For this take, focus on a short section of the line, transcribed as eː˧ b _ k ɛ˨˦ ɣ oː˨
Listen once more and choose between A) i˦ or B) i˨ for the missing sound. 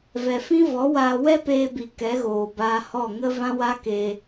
B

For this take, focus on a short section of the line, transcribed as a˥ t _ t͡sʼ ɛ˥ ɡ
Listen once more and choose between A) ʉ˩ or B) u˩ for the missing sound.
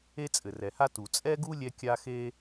B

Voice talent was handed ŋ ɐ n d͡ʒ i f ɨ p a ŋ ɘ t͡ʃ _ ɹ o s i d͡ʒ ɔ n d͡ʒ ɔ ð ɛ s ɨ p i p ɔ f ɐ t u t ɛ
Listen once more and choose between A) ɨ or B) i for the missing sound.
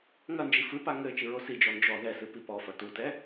A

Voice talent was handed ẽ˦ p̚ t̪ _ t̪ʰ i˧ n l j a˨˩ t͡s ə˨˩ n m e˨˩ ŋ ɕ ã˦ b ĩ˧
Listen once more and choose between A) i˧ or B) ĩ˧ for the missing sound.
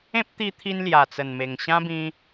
A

